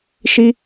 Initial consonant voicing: voiceless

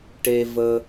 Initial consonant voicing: voiceless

